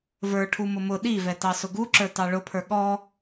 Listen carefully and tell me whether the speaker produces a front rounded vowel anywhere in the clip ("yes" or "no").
no